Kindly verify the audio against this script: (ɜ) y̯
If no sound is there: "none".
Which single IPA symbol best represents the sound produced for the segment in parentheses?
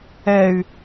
ɛ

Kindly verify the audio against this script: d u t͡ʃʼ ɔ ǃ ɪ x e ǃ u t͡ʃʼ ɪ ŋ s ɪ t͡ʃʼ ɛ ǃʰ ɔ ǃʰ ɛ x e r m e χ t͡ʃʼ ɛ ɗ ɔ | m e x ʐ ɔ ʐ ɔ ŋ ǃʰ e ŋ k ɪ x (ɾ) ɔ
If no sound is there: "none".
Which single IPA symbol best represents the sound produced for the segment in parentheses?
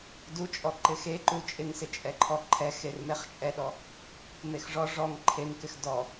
d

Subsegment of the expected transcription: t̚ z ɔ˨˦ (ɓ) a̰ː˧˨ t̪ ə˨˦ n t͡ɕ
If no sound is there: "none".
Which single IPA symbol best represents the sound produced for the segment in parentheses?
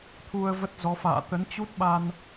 f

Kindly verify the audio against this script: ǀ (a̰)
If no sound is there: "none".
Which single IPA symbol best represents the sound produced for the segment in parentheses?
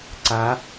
a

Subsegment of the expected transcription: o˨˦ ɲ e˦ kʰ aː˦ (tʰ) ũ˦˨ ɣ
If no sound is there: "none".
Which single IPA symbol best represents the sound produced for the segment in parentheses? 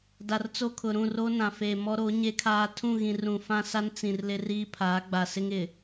tʰ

